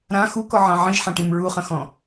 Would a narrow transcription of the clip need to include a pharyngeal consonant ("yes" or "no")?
yes